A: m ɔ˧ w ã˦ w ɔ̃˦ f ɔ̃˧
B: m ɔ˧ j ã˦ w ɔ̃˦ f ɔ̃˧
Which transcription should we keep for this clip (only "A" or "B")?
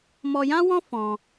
B